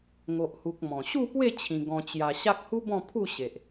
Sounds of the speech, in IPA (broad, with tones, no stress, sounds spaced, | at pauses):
ŋ o˨ ʔ h u˨ k̚ m ɔ̃˨˩ ɕ u˥˧ p w e˥˧ t͡ɕʰ ĩ˧ ɡ ɔ̃˧ t͡ɕ j a˧ ɕ a˦ k̚ h u˦ b ɔ̃˥˧ pʰ u˥˧ ɕ e˨ ʔ